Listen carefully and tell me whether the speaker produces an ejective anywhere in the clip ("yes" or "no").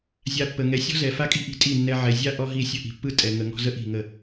yes